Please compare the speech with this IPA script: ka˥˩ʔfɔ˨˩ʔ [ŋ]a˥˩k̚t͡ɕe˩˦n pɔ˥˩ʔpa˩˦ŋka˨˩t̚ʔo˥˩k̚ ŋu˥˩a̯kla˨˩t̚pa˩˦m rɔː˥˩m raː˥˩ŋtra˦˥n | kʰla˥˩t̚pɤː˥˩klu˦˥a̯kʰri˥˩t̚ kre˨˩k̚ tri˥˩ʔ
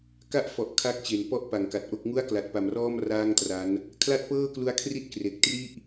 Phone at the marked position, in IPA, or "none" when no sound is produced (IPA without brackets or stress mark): kʰ